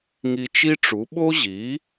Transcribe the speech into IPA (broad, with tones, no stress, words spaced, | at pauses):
ŋi˧t͡ʃi˥ʈ͡ʂu˩˥ ɓo˥ʑi˩˥